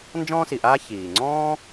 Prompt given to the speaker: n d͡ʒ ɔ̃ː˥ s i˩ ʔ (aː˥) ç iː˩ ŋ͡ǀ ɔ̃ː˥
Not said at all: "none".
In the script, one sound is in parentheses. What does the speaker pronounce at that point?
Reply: aː˥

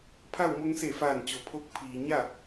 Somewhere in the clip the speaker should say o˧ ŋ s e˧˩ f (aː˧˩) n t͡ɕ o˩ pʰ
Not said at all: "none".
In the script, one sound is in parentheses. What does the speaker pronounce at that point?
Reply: aː˧˩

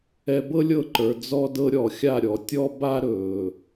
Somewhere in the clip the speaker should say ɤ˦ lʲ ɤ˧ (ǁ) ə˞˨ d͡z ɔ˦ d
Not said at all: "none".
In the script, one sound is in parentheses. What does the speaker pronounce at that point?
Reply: ǃ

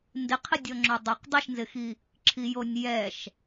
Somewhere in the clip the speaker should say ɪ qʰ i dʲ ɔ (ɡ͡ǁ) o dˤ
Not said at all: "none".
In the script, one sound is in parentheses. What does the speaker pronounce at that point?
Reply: ŋ͡ǁ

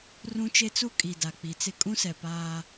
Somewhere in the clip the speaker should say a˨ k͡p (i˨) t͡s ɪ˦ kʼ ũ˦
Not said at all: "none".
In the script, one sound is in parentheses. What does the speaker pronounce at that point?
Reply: i˨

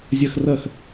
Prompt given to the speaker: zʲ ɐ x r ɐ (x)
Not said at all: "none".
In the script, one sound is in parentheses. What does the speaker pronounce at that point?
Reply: x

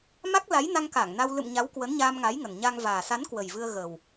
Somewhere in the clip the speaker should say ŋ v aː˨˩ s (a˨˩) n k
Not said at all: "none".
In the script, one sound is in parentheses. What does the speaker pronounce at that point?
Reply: a˨˦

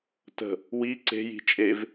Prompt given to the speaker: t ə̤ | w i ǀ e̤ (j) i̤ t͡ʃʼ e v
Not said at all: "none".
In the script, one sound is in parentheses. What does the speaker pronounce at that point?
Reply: j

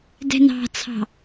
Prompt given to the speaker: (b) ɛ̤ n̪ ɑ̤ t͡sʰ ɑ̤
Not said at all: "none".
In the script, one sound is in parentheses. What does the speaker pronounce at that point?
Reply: d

